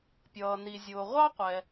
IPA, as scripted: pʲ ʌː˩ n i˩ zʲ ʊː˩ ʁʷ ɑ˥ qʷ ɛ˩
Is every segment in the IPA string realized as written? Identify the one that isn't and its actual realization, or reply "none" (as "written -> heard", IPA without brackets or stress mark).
none